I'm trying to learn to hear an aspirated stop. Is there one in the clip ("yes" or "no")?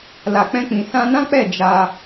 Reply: no